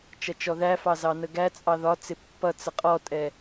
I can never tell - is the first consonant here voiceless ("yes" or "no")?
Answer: yes